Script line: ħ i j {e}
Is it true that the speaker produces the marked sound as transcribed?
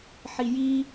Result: no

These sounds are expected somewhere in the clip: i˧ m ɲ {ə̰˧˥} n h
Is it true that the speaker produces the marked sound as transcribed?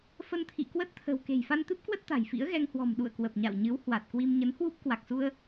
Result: no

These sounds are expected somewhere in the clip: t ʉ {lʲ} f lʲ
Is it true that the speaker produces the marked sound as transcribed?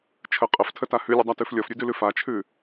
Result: no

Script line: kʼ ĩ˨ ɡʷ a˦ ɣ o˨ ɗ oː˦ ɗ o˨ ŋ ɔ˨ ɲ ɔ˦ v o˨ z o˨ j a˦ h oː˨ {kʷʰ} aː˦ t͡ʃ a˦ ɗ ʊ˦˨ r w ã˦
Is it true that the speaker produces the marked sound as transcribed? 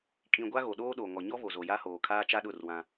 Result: no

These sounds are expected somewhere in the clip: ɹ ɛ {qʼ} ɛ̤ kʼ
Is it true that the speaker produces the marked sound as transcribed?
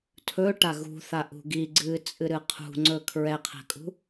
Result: no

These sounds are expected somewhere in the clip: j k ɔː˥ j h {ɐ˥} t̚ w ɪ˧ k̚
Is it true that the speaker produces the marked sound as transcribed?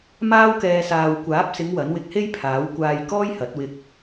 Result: no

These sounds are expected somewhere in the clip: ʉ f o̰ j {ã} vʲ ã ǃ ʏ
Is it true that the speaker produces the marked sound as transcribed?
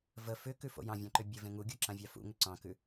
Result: no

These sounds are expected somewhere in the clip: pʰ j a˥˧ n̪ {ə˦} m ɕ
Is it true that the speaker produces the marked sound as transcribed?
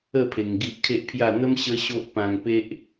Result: yes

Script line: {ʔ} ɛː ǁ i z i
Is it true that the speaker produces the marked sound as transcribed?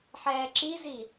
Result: no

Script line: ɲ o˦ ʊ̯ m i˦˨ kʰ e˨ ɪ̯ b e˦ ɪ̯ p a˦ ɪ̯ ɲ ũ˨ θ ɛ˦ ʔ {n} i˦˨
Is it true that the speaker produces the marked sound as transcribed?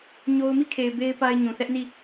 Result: yes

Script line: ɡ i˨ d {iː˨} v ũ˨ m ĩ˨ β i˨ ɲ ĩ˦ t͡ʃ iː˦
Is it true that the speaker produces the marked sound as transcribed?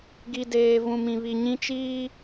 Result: no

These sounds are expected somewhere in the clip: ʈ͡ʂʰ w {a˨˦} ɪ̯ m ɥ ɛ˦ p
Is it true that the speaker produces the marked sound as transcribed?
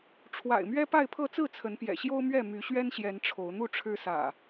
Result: no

